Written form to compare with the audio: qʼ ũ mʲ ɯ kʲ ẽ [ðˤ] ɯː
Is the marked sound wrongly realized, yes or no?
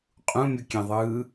no